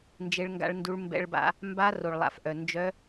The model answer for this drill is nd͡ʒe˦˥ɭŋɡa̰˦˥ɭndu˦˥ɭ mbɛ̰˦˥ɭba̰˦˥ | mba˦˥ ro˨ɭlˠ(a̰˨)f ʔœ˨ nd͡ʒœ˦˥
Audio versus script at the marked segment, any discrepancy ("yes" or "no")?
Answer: no